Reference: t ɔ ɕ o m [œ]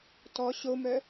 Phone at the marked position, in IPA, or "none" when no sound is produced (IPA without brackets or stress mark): œ